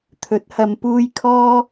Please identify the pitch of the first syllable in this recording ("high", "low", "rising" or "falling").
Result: rising